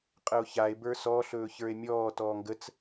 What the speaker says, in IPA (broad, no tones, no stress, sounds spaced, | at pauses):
qʼ ə o̯ ç a e̯ b ə˞ s ɔ ɬ ɵː ç ə˞ e̯ mʲ ɔː t ɔː ŋ ɡ ə t͡s